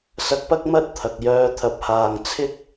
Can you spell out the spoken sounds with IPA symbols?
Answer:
s ɐ˧ k̚ p ɐ˥ k̚ m ɐ˥ t̚ t̪ʰ ɐ˨ k̚ j œː˧ t̪ʰ ɐ˨˥ p̚ h aː˨ ŋ t͡sʰ ɪ˥ k̚

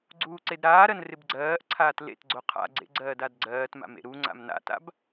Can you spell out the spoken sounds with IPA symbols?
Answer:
ɡ͡ǀ uː ǀ e d ɾ aː ɾ ɜ n r ɪ b ɡ͡ǀ ɜː ʔ ǀʰ aː t l ḛ t ɡ͡ǀ o qʰ a̰ ɡ͡ǀ ḛ ɡ͡ǀ ɜː d a d ɡ͡ǀ ɜː t m a̰ m ḛ ɾ u ŋ͡ǀ a̰ m n a̰ t a̰ b

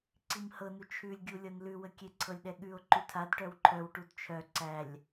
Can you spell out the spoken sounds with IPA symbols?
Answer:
ǀ i m h ɤ n u t͡ʃʰ ʉ lʲ ɡʲ u lʲ ɤ n l ʉ w ə kʲ e ǀʰ ɤ lʲ ɗ ɛ ɠ ʉ o̯ ǃ ʉ tʰ a d ʈ œ w ǃʰ œ w ʈ u d t͡ʃʰ œ ǀ æ lʲ

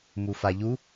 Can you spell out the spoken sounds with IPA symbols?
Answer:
m u f a ʎ u

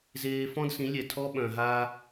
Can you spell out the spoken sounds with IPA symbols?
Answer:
z eː˦ f ɔ̃˦ d s ĩ˨˦ lʲ ɛ˨ tʰ ɔ˦ ɓ œ̃˨ ɦ aː˦

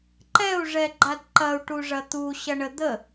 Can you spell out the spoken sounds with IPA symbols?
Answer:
ǃ ɛ u̯ ʐ ɛ ɡ͡ǃ a d ǃ ɐ u̯ ʈ u ʐ ɐ t̪ u ɕ ɐ ɳ ə d̪ ə

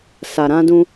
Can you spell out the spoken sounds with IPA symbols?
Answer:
s a˨ ɾ ã˧ d ũ˧

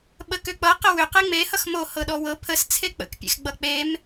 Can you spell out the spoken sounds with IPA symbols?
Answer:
ɓ ə k ʏ k͡p ʌ q ə w ʏ q e ŋ͡m e h ʌ x m o h ɤ ɗ ɔ w ɤ pʰ ə s t͡sʰ e k͡p ə̰ k pʲ ḛ x ɡ͡b ʌ k͡p e m

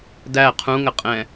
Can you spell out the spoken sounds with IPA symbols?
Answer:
d æ qʰ ũ ŋ ə qʼ ɛ̃

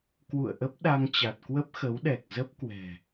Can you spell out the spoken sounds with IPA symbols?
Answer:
k w ṵ˧˨ ə̯ ʔ ə˦˥ p̚ ɗ a˧ ŋ t͡ɕ a˨˩ t̚ k w ə˦˥ p̚ x ə˨˦ w ɗ ɛ˨˩ k̚ z ə˦˥ p̚ k w ɛ̤˨˩

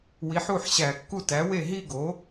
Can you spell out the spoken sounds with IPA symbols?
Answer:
w i˩˥ ħ u˥˩ ħ ɕ æ˧˩˧ kː u˥˩ t æ˩˥ w e˥˩ ɦ i˥˧ ɡ o˩˥

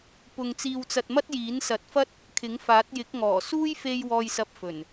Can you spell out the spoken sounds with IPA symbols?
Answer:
p ʊ˧ ŋ t͡s iː˧ w t͡s ɐ˧ t̚ m ɐ˥ t̚ j iː˨˥ n s ɐ˨˥ t̚ f ɐ˥ t̚ | kʰ ɪ˨˥ ŋ f aː˨˥ t̚ j ɪ˨˥ k̚ ŋ ɔː˨˩ s uː˥ j f e˧ j w ɔː˨ j s ɐ˨ p̚ f ɵ˨˩ n

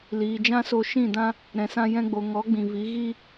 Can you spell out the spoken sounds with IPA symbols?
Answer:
l iː˨ d͡ʒ ã˦ s o˧ ʃ ĩ˦˨ d ã˦ | ɾ ɛ̃˨ s ã˧ j ɛ̃˧ ɡ͡b o˨ ŋ ɔ˨˦ ɡ͡b ĩ˨ v i˨˦ ɣ i˦

